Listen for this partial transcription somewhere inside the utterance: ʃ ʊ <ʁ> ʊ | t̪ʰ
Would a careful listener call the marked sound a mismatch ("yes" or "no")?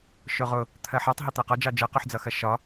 no